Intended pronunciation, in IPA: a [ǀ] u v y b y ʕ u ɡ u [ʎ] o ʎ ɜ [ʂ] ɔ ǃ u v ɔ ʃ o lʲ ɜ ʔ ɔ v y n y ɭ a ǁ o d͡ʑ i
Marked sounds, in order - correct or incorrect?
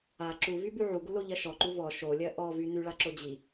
incorrect: ǁ, incorrect: l, incorrect: ʃ

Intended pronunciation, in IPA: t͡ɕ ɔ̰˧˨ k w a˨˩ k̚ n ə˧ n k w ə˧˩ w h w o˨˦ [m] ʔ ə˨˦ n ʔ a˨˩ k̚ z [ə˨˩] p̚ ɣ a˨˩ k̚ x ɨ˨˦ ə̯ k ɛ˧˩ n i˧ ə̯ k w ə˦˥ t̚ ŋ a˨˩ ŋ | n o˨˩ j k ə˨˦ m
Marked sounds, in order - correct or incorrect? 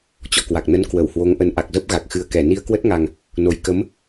incorrect: ŋ, incorrect: ə˦˥

